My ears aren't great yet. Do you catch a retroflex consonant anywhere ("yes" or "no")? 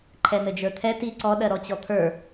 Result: no